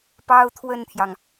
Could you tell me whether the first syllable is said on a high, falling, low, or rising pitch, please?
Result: high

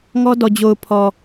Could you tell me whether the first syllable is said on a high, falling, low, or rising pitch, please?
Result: high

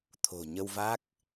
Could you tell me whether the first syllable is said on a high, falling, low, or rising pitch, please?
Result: low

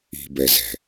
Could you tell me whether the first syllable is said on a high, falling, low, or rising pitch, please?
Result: low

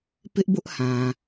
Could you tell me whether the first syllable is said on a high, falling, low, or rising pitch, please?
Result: high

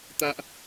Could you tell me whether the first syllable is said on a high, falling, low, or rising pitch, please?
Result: high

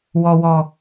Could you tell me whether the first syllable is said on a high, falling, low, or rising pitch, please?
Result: low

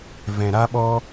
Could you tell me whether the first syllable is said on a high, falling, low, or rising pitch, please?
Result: low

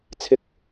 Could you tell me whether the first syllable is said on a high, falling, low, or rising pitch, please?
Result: low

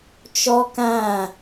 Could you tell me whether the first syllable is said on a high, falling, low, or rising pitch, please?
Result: high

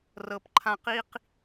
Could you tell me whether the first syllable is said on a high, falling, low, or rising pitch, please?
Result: low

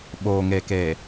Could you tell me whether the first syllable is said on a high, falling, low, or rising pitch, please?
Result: low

